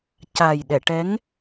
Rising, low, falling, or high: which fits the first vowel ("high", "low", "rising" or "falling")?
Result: low